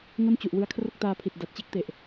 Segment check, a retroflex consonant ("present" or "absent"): absent